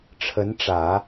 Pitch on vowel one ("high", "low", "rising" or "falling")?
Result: rising